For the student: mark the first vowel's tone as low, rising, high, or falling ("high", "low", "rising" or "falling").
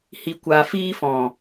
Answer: low